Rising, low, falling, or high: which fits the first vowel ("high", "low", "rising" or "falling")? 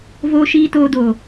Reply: low